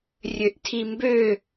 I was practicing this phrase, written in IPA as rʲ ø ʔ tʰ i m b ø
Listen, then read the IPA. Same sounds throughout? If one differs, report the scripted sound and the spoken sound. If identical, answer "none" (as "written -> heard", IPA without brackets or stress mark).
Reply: none